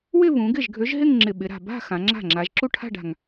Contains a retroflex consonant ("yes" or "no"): yes